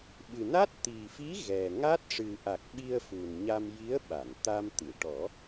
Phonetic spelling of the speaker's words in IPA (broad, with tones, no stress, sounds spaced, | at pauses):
ɓ ɨ˨˩ n a˦˥ t̚ t̪ i˨˩ f i˧˥ ɣ ɛ˨˩ ŋ a˦˥ t̚ ʂ ɨ˨˩ ʔ a˨˩ k̚ ɓ i˧ ə̯ f u˨˩ n ɲ a˧ m j i˧˥ ə̯ ɓ a˨˩˨ n t̪ a˧ m t̪ ɨ˨˩˨ ʈ ɔ˨˩˦